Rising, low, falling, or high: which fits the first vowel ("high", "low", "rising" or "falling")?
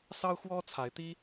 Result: high